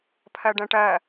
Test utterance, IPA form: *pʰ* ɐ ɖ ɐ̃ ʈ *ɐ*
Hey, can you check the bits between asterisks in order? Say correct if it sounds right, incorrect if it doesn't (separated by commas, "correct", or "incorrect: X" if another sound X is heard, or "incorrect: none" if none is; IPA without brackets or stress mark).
correct, correct